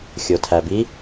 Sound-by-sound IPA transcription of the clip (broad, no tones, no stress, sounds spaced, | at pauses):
xʲ o tʰ æ b i